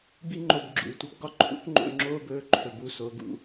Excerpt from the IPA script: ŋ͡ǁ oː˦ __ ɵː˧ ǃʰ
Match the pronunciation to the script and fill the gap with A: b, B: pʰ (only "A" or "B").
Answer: A